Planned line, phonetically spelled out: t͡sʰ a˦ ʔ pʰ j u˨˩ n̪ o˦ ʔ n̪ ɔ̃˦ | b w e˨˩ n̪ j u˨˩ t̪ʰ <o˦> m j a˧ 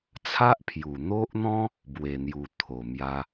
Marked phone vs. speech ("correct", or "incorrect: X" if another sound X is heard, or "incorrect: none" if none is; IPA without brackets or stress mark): incorrect: o˨˩